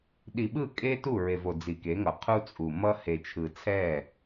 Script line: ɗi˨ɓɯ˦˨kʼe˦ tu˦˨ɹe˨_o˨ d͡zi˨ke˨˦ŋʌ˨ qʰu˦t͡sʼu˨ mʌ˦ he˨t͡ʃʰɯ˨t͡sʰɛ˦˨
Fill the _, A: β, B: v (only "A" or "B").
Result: B